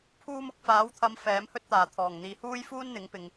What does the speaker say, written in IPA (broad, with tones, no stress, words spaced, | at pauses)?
pʰuː˧m ʊ˨˥k̚faː˨˥wt̪ʰɐ˨˧m fɛː˨˥mhɵ˥t̚t̪aː˨˩ t̪ʰɔː˨˩ŋ n̪iː˨ huː˥jfuː˥nn̪ɪ˨˥ŋ pɪ˨ŋ